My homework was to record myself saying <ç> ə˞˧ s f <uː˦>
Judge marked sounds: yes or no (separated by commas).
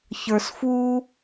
yes, yes